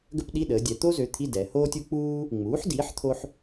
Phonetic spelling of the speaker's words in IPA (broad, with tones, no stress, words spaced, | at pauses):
ɡə˥pɗi˧˥˧ ɗəː˩˧dʲɛ˩˧t̪o˥zø˩˥ t̪ʰi˧˥˧dɛ˩˧hoː˥tʲu˥ k͡puː˥ | ŋ͡muː˩˥ħdiː˩˥ħ t̪ʰo˥ħ